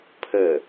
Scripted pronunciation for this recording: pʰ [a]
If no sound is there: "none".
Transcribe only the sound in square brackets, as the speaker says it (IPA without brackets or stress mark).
ə